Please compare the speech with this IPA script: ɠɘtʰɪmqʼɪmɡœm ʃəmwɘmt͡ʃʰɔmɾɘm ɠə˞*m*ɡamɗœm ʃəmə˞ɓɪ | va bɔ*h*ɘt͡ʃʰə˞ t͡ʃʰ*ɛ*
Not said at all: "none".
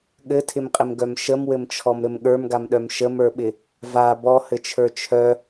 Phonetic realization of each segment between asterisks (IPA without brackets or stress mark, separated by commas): m, h, œ